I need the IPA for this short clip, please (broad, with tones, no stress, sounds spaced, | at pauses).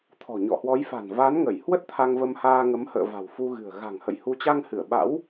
t̪ʰ ɔ̤˨˩ ɲ ɔ̰˧˨ h w ɔ˨˦ j f a̤˨˩ n v a˨˦ n ŋ ə˧˩ j h w ə˦˥ t̚ t̪ʰ a˧ ŋ v ə˧ m h aː˧ ŋ ə˨˦ m h ə̰ː˧˨ v a̤˨˩ w f u˧ ɣ ɨ̤˨˩ ə̯ ɣ a̤˨˩ ŋ h ə̰˧˨ j h u˨˦ t͡ɕ a˧ ŋ h ɨ˧˩ ə̯ ɓ a̰˧˥ w